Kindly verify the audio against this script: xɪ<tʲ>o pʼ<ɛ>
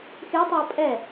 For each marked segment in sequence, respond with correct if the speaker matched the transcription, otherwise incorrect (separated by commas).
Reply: incorrect, correct